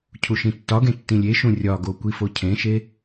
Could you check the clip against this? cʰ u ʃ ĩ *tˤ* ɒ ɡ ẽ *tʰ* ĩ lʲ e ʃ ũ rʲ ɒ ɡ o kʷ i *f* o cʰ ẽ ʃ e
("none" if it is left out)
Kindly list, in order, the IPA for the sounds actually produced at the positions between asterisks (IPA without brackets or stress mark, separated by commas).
tː, tː, f